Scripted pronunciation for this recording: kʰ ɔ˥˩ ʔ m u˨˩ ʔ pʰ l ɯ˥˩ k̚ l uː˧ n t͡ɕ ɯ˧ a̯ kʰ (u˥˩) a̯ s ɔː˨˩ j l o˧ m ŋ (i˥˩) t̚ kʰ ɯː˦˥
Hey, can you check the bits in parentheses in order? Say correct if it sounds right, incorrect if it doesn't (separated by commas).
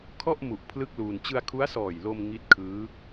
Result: incorrect, incorrect